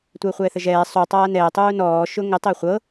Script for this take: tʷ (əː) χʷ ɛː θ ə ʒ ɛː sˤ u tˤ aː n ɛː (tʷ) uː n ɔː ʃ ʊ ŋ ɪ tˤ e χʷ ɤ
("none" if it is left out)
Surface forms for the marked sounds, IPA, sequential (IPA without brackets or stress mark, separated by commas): əː, tˤ